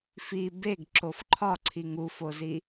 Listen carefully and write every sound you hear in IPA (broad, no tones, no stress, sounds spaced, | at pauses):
f i b e ɡ ǁ o f ǃʰ ɒ ǀʰ i ŋ u f o z i